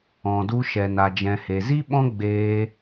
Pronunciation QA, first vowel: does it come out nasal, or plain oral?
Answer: nasal